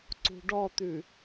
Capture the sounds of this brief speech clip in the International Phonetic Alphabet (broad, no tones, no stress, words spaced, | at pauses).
ǀṳɖɔt̪ʉ